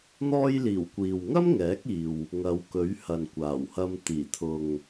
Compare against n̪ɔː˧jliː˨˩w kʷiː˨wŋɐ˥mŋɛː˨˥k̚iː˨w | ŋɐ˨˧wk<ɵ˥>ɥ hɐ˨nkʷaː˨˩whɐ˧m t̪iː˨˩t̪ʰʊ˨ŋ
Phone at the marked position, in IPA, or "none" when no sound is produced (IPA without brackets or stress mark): ɵ˨˥